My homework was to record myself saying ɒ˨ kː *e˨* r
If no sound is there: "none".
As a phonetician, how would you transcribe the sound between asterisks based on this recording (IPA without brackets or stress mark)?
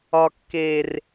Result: e˨